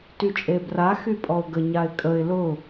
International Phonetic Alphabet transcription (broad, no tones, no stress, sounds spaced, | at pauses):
t y t͡ʃʼ e b r a x y pʼ ɔ ʊ̯ ɡ ə ɲ a ɪ̯ kʼ ə ɪ̯ l ʊ